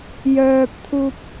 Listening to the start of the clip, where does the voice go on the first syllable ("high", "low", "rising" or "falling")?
high